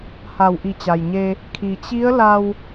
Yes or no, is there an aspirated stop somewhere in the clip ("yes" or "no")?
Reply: yes